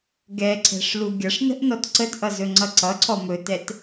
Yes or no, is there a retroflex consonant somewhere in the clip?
yes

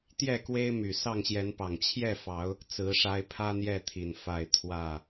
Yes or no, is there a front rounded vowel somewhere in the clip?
yes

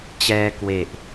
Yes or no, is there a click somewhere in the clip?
no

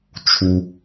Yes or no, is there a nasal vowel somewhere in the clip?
no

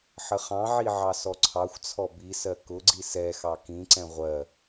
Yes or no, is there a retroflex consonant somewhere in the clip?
no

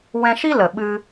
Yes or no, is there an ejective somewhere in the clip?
no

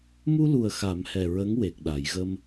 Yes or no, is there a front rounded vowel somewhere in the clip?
no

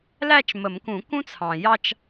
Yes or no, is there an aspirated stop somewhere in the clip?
yes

